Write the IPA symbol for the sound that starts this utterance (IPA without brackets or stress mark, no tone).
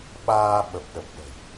ɓ